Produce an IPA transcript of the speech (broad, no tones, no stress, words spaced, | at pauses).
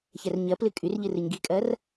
çɛrɲɜplɨ kʼyr ʎɨrɨɲɡikʼɜr